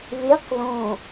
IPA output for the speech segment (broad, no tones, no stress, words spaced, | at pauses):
βeq ðõ